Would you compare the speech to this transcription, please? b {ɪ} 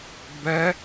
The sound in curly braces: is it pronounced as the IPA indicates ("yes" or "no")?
no